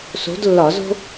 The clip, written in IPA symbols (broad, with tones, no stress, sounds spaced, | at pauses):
s o̤˨˥ d lː ɒ˧˩˧ z o̤˥